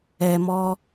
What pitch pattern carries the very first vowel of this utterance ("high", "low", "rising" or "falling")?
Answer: low